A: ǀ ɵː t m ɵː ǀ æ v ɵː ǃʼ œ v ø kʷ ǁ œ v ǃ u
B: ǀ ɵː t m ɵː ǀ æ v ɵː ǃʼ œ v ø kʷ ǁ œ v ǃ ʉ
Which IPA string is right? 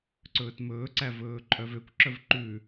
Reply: B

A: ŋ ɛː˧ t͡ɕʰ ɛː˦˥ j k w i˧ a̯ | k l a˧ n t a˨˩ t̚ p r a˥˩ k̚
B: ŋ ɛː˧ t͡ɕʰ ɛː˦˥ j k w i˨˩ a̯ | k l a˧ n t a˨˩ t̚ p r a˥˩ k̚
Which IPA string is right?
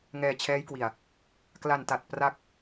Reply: B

